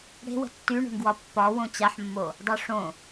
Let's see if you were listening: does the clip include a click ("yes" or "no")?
no